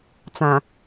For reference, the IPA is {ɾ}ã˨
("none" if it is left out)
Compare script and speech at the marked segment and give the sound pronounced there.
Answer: t͡s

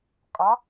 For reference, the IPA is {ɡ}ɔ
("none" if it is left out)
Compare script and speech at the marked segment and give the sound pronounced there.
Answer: kʼ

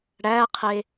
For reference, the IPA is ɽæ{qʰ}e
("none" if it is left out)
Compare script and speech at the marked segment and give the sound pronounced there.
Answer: qʰ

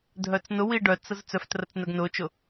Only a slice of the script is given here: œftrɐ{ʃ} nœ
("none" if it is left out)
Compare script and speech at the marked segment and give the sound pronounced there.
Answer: t͡s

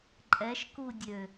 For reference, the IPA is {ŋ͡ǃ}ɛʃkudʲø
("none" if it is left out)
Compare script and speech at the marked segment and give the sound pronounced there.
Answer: ǃʼ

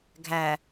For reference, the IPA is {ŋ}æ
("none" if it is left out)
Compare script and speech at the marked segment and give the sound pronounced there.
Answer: ɡʱ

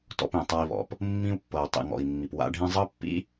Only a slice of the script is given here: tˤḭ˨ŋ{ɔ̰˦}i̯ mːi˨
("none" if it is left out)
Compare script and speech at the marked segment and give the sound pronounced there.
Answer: ɔ̰˨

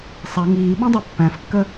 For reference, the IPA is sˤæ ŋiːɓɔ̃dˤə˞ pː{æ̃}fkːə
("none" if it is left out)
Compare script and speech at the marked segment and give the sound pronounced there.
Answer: æ̃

